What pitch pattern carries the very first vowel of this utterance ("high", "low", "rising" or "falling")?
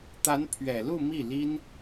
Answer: rising